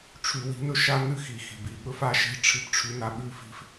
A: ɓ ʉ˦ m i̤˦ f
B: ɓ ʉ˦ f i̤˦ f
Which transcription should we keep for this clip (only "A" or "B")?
B